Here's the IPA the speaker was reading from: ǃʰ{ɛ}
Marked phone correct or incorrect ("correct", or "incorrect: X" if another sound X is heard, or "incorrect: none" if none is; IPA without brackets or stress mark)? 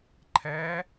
correct